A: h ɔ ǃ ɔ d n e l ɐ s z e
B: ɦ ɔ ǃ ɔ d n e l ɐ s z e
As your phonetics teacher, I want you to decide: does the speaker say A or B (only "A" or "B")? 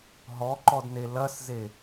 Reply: B